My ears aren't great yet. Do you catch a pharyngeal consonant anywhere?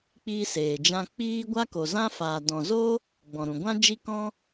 no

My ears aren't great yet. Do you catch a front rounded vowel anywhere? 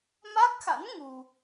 no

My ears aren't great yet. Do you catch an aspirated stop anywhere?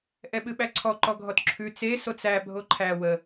yes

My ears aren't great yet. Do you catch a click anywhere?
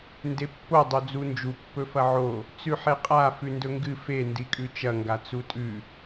no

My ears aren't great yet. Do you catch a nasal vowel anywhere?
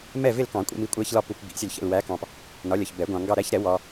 yes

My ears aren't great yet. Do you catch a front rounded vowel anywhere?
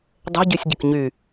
yes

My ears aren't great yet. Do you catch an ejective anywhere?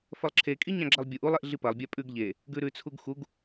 yes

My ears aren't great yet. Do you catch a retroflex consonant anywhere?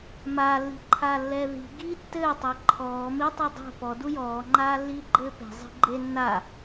no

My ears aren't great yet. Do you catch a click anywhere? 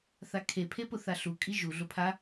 no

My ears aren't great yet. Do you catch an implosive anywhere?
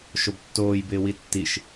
no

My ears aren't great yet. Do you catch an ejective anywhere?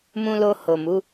no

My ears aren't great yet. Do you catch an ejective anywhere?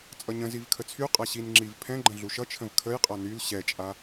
yes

